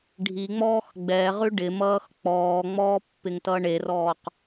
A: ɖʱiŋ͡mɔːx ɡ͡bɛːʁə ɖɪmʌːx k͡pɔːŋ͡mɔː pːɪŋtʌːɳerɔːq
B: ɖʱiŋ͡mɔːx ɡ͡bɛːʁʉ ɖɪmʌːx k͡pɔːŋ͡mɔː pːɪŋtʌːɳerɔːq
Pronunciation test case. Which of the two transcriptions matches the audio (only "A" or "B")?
B